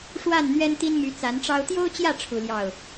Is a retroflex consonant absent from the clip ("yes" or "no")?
no